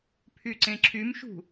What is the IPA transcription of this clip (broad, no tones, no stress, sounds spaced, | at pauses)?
pʰ y ǀ ẽ ǁʰ y m ʃ ṳ